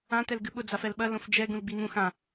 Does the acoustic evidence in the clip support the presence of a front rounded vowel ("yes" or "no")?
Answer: no